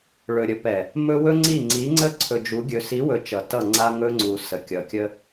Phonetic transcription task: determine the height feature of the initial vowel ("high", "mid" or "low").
mid